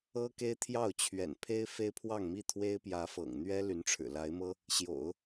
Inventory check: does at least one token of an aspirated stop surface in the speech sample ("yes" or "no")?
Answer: yes